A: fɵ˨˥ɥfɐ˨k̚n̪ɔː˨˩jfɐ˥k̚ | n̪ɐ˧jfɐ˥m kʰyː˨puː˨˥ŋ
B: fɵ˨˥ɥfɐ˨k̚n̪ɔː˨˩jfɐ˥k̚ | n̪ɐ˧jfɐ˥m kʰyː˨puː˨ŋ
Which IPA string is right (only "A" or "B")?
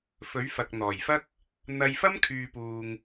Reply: B